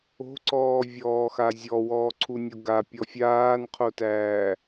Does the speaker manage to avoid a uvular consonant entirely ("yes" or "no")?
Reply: no